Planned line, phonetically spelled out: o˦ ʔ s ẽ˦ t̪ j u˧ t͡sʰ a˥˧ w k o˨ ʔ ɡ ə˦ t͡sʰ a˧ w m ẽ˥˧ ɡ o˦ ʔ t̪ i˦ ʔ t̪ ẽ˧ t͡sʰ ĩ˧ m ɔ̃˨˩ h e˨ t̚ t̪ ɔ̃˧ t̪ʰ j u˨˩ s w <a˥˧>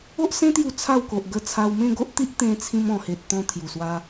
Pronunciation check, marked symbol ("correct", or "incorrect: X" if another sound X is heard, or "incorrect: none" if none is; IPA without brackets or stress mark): incorrect: a˧